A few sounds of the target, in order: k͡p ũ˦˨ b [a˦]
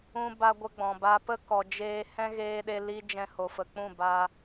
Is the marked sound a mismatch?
no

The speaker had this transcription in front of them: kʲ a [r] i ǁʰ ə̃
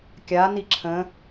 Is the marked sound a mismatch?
yes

